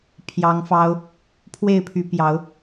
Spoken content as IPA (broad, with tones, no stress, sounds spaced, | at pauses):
pʰ j ɑ˨˦ ŋ f ɑ˦ ʊ̯ | pʰ w e˥˨ ɪ̯ pʰ y˨˦ p j ɑ˨˦ ʊ̯